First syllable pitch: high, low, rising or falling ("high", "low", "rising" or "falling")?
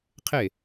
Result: falling